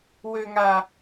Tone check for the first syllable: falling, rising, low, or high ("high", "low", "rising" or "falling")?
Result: high